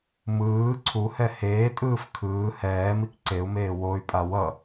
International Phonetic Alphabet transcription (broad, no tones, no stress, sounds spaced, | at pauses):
m ɯː ǀʰ u h ɛ h eː tʼ ɯː f kʰ ɯː h ɛː m i k ǀ e u̯ m eː w o y̯ pʼ a w ʌ